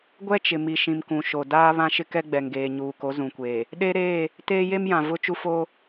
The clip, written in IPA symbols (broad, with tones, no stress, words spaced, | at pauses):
ɡʷɛ˦t͡ʃɪ˨mi˨ʃĩ˨m kũ˨ʃo˨ daː˦βã˦ ʃɪ˦kɛ˦ɡ͡bɛ˨ŋɡeː˨ ɲuː˨ko˨˦zũ˨kʷeː˨ | ɗe˦ ɾeː˦˨ | teː˦je˦mjã˨ vʊ˦ t͡ʃu˦foː˦